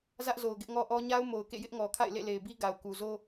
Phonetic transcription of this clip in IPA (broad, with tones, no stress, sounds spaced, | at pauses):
z ä˦ ʔ z o˨ ʊ̯ ɡ ɪ˦ ʔ ŋ ɔ˦ ʔ ɔ˦ ɲ a˦ ʊ̯ m o˨ ʊ̯ k ḛ˦˨ j ɪ˦ ʔ ŋ ɔ˨ kʰ a̰˦˨ ɪ̯ l ḛ˦˨ l e˨ ɪ̯ b i˦ ɡ a˨ ʊ̯ k u˨ z o˦